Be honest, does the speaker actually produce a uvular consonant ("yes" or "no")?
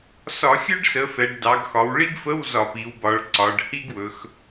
no